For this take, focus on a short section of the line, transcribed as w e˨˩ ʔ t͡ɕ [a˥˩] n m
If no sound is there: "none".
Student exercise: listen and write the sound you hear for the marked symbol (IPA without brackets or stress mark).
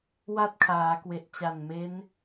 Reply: a˨˩